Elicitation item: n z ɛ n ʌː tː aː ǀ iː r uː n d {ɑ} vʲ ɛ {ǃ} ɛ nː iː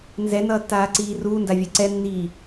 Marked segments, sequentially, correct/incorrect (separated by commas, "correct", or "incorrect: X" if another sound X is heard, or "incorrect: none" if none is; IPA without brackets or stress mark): incorrect: a, incorrect: ǀ